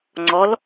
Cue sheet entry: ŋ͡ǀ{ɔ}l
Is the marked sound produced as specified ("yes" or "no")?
yes